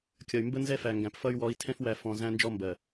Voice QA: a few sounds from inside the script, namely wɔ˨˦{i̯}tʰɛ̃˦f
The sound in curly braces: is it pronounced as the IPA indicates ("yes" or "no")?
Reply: yes